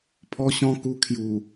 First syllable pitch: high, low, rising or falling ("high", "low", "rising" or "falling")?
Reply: high